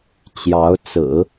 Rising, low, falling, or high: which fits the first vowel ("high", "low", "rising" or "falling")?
rising